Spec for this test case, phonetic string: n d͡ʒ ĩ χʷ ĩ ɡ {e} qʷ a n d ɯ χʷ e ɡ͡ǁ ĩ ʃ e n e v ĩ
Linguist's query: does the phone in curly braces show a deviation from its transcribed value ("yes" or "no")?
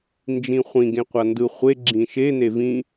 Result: yes